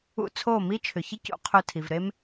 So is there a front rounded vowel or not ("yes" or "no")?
yes